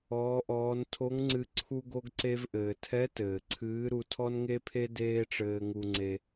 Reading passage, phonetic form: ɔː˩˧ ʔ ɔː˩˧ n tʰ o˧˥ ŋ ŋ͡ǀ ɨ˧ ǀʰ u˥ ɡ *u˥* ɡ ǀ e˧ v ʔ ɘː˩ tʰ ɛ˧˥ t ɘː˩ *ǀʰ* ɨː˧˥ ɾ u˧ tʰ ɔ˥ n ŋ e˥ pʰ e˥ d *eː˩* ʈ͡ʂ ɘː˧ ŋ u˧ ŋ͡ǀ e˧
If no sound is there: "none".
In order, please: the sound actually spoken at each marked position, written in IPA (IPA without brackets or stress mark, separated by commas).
o˥, ǀʰ, eː˥